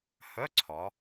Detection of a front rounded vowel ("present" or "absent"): present